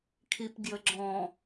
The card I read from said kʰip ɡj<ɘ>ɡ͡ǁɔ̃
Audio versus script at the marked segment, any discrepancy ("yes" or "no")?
no